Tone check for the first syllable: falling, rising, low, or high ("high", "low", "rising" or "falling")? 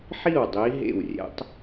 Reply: falling